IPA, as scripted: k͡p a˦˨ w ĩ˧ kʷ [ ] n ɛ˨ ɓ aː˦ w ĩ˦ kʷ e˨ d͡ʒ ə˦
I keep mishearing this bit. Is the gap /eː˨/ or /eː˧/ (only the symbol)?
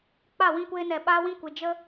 eː˧